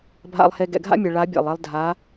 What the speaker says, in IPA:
bʱ a̰˨ lˠ h e˨ ɡ ɛ̰˨ ɡʱ a̰˦ mʲ ɛ˨ ɭ a˨˦ bʲ ɛ̰˨ lˠ e˦ lˠ dʱ a˨˦

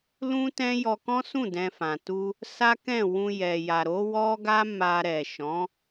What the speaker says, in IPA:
l ũ˦ t ɛ̃˦ j ɔ˧ k ɔ̃˦ s ũ˦˨ d ɛ̃˧ f ã˨ t u˧ | s a˦ k ɛ̃˦˨ w ũ˧ j ɛ˨ j a˨ ɾ o˨˦ w ɔ˦ ɡ a˦ m a˧ ɾ ɛ˨ ʃ ɔ̃˨˦

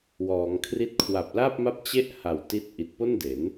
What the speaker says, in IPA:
w ɔː˩˦ ŋ kʰ r i˥˩ t̚ kʰ w a˨˩ p̚ l a˥˩ p̚ m a˥˩ p̚ t͡ɕ e˥˩ ʔ h a˨˩ w t i˦˥ t̚ ʔ i˨˩ t̚ p o˥˩ n d e˩˦ n

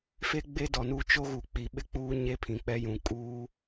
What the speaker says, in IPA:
f e˦ ɡ͡b e˦ d ɔ˨ n u˦ t͡ʃ o˦ ɣ u˨ k͡p i˨ ɓ ɪ˦ k͡p uː˦ ɲ e˦ pʰ ĩ˨ k͡p ɛ˦ j ũ˨ kʼ uː˦

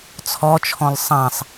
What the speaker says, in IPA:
t͡sʰ ɔ t͡ʃʰ ɔ̃ l sˤ ã sˤ

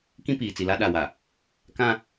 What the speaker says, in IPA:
k ĩ˦ p iː˨ t͡s i˨ l a˦ ɗ a˨ w a˨ | k ã˦

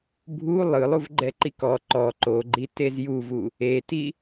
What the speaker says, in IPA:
bʱ u lˠ ɯ lˠ u v ɡ͡ǃ ɛ ǃ i k ɔ ǃ ɔ ǃ o ɡ͡ǃ i t e z j u v u | e t i

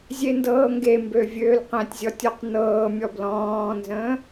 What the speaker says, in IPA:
zʲ e n d ɤː ŋ ɡ e m b ø vʲ øː l q ɛ̃ tʲ zʲ ɔ tʲ ɔ q n ɤː mʲ ɔ b l ɔ̃ː n z ə̃ː

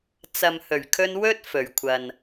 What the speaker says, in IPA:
t͡s ɐ˨ m h ɵ˨˩ ɥ kʰ ɵ˧ n w ɵ˥ t̚ f ɵ˨˩ ɥ kʷʰ ɐ˨ n

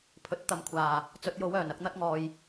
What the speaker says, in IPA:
pʰ ɵ˨˥ t̚ t̪ ɐ˨ m kʷʰ aː˨˩ | t͡s ɵ˨˥ t̚ j o˨˥ w œː˨˩ n ɐ˨˥ k̚ n̪ ɐ˥ t̚ ŋ ɔː˨ j

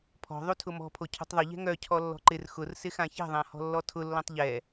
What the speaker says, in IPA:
pʰ ɔ̤ ðˤ u tʰ ʊ m ɔ̤ pʰ o cʰ ṳ tˤ ðˤ ʊ ʎ ɛ̤ ŋ œ cʰ ɔ lː ɔ̤ ǃ ɪ r x ʊ r s ɪ x ã ç ɛ̤ ðˤ ã h ɔ̤ lː ɔ tʰ ʊ lː ɔ̃ tˤ ʎ ɛ

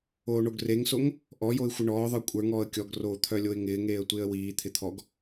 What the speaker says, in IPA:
oː ɳ o ɡ r e ŋ s o ŋ | ʔ ɔ j o ɪ̯ xʷ ɪ ɳ ɔː ðˤ ə˞ kʷʼ ə˞ ŋ ɔː ə̯ kʲ ɔ ɡ r oː t̪ʰ œ lʲ o ɪ̯ ŋ ɪː ŋ eː ə̯ tʷ ɪː ə̯ w iː t̪ʰ ɪ t̪ʰ ɔ ɡ

